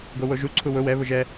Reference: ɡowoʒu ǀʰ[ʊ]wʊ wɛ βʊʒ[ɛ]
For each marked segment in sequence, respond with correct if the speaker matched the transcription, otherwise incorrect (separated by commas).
incorrect, correct